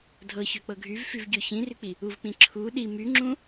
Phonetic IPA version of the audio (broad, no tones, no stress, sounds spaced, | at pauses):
dʱ ɤ ç ø k͡p ɤ ɡʱ y v f y v ɟ ø ç ĩ r y k͡p i | u v k͡p ĩ ǁʰ u ɗ i m y ŋ͡ǁ ũ